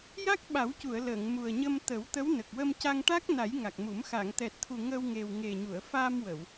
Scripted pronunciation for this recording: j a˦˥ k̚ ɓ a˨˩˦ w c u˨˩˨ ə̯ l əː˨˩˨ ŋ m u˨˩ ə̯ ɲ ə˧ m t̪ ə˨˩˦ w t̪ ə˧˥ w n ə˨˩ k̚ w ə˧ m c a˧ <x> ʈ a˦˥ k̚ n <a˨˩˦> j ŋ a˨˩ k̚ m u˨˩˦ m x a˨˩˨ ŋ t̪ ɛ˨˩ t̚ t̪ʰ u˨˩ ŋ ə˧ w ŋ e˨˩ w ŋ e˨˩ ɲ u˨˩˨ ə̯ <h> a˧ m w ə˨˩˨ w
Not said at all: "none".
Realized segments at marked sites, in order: ŋ, a˨˩˦, f

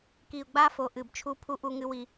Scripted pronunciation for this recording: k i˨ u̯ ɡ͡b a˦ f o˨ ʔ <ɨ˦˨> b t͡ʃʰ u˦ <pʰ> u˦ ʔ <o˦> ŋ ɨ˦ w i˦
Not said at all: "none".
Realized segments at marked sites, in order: ɨ˨, pʰ, u˦

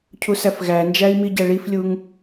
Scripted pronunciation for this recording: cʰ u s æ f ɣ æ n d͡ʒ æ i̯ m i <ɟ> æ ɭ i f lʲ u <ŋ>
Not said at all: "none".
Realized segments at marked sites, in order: ɟ, ŋ

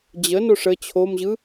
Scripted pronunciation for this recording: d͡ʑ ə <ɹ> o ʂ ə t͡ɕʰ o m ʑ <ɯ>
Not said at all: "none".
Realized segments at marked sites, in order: n, ɯ

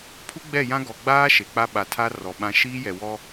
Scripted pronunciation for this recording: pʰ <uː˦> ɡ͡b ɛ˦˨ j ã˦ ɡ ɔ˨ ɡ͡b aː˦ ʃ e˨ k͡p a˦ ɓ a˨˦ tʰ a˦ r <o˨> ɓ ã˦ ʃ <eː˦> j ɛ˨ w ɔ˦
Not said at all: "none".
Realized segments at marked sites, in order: u˦, ɔ˨, iː˦

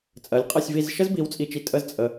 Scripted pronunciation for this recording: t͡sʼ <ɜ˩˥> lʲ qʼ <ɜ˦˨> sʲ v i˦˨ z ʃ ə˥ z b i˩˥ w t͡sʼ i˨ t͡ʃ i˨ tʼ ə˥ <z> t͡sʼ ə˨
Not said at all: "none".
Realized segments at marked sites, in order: ɜ˩˥, ɜ˦˨, z

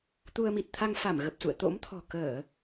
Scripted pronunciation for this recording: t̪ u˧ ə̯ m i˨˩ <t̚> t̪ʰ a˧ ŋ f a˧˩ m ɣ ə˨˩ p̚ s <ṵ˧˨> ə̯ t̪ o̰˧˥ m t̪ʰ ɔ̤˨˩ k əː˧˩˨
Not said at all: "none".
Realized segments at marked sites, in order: t̚, ṵ˧˨

